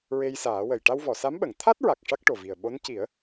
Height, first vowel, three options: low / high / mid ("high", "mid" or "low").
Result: mid